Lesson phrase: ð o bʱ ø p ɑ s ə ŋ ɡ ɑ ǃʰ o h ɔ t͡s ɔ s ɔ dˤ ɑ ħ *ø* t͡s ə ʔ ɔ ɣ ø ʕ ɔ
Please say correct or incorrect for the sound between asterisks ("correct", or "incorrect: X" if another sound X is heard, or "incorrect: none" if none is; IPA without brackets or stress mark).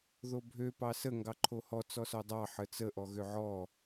incorrect: ə